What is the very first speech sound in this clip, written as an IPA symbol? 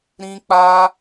ɾ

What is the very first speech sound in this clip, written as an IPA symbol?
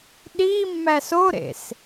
ɗ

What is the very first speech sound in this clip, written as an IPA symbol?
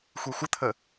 xʷ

